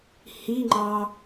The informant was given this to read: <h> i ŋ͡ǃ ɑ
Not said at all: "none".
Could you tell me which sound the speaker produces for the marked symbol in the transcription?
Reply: h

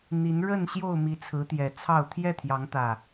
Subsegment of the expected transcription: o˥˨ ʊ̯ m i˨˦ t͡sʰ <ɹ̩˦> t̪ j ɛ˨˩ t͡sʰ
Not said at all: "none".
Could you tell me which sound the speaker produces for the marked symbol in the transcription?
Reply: ɹ̩˨˦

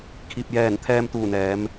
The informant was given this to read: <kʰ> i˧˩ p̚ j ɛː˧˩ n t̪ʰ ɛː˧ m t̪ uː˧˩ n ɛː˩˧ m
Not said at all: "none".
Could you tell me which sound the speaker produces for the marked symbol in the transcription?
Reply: kʰ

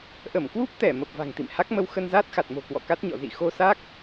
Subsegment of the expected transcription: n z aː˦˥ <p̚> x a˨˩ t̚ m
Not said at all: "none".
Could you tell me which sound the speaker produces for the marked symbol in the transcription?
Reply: t̚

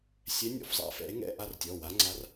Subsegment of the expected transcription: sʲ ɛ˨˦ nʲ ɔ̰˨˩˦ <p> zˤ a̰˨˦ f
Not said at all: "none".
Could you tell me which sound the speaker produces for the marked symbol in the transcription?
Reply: f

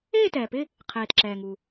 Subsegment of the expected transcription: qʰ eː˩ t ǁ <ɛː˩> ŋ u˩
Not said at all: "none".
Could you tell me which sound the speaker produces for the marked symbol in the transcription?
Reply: ɛː˩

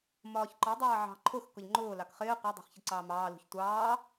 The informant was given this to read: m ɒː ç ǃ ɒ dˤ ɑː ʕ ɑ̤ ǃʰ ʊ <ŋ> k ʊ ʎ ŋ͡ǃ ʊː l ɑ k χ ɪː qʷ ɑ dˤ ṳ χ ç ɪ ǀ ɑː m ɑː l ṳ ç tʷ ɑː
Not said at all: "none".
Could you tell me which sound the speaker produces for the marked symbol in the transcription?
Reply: x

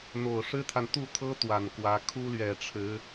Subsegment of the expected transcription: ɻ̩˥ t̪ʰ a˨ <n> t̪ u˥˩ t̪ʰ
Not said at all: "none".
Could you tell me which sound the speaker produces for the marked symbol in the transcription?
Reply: n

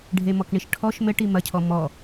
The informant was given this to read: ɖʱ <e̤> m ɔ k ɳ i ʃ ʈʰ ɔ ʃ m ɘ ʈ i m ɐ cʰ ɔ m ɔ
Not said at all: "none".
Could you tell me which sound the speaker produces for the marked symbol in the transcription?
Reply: e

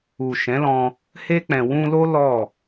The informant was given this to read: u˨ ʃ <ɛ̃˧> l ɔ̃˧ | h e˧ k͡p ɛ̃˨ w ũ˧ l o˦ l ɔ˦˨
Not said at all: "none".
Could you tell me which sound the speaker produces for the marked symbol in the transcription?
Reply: ɛ̃˨˦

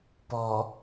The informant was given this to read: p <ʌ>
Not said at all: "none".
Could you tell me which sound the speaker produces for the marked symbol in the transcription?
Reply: ɔ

